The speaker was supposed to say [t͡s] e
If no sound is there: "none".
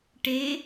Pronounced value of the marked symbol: ʈ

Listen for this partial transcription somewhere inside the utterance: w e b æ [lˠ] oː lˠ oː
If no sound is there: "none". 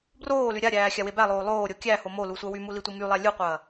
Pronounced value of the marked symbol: lˠ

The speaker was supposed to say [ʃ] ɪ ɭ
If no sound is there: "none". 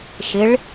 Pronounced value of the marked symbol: ʃ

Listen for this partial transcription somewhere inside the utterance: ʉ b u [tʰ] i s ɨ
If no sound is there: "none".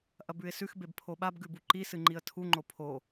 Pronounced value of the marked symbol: ǃ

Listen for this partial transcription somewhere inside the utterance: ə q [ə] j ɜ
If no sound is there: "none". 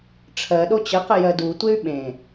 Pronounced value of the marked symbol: ə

